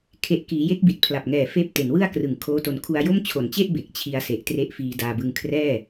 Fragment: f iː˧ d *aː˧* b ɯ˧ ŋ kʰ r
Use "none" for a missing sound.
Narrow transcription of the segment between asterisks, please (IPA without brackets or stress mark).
aː˧